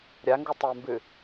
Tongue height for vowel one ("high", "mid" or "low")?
low